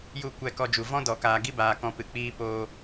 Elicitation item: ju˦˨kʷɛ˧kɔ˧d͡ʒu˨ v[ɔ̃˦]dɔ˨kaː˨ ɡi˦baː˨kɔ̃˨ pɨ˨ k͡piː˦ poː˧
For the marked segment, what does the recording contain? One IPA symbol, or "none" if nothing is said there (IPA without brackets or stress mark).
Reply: ɔ̃˦